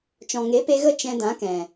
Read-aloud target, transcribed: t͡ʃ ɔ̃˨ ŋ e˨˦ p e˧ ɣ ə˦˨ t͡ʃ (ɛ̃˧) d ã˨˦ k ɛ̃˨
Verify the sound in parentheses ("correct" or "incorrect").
correct